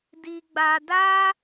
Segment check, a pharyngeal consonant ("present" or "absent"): absent